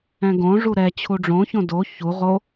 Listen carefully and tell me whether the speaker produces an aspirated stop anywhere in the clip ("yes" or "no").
yes